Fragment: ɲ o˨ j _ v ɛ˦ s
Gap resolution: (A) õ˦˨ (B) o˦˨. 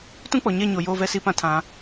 B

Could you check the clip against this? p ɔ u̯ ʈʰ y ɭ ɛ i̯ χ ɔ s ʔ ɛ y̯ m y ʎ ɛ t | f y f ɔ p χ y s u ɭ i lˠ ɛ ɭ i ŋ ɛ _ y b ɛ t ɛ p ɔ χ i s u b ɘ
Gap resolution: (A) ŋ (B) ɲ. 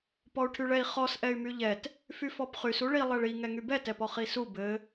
A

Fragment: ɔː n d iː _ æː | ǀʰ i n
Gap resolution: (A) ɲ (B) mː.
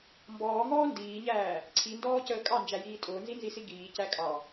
A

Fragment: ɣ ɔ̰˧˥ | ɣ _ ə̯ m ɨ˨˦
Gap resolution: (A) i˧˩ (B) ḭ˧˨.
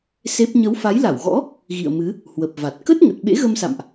B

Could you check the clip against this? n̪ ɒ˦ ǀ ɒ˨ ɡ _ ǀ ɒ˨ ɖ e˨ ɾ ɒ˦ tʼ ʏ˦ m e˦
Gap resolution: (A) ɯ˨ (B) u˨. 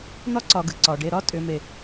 A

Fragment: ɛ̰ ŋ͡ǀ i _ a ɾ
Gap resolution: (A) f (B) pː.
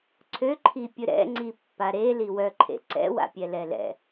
B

